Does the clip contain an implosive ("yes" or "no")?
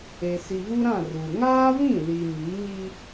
no